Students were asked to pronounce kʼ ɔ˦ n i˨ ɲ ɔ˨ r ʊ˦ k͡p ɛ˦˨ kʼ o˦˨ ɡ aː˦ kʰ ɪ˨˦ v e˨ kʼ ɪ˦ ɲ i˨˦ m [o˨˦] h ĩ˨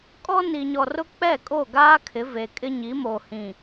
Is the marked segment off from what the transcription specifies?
yes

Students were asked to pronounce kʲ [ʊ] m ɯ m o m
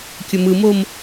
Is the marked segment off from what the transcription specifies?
no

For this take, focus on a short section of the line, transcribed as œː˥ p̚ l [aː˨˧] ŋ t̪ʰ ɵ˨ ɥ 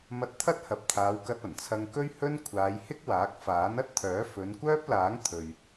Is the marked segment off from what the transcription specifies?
yes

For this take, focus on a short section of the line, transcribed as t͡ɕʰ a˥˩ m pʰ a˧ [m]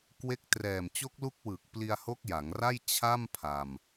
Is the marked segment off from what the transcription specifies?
no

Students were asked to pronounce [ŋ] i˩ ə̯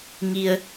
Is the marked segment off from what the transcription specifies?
no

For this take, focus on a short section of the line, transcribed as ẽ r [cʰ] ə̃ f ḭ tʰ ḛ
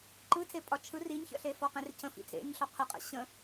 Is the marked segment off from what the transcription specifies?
no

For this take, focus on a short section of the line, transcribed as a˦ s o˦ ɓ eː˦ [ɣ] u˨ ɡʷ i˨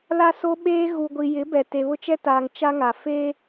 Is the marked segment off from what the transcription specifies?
no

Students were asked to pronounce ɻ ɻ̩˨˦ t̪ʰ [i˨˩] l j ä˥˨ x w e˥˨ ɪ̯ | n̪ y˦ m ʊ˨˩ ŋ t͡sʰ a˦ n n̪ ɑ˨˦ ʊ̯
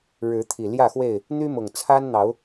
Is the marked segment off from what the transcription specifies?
no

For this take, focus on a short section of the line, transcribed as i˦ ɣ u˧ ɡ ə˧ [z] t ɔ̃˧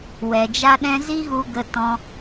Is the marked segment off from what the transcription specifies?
yes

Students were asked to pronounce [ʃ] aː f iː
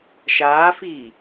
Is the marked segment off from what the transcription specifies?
no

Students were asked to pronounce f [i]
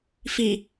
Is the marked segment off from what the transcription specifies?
no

